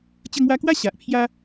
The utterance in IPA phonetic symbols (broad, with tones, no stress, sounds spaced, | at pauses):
t͡ɕ ə˧ ŋ w a˧ k w a˦ ɕ a˨ ʔ pʰ j a˦